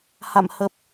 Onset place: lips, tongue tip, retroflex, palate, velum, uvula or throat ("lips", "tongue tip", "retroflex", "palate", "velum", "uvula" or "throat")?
throat